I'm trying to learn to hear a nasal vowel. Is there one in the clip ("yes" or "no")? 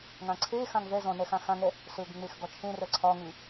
yes